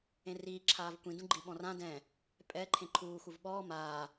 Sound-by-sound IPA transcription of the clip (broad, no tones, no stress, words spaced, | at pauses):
ẽriːǁʰaːv kʷĩdũɡ͡ǃiɓɔ̃ rã dɛ̃ | pʼɛ ǃʰẽǃʰuːxuv ɓɔː maː